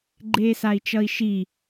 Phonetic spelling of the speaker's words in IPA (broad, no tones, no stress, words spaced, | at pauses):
ɡ͡ǃeːsai̯t͡ʃʌi̯ʃi